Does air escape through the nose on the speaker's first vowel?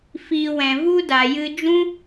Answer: no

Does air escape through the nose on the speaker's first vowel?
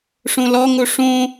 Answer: yes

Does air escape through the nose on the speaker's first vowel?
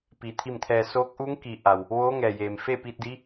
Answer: no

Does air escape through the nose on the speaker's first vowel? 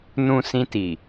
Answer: yes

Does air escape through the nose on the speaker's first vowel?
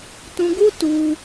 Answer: yes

